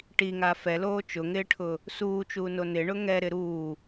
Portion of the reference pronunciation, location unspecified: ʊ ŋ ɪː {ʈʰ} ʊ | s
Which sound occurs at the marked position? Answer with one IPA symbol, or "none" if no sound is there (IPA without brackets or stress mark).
ʈʰ